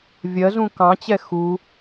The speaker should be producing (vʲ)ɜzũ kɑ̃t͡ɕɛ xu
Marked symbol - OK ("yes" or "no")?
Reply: yes